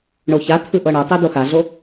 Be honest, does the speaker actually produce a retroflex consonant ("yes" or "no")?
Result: yes